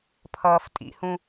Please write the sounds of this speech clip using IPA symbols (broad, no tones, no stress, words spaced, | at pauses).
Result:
pʰʌːftʼḭhũ